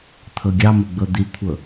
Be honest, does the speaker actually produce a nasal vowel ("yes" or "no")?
no